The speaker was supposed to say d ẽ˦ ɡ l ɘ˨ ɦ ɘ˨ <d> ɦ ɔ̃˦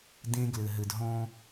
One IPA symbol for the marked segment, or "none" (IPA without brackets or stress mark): d